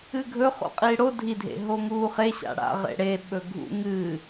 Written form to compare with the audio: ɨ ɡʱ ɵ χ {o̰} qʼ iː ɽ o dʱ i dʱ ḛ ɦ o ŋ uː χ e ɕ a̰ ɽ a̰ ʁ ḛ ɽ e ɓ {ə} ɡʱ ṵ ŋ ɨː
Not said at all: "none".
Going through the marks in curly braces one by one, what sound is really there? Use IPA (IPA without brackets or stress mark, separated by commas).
o̰, ɵ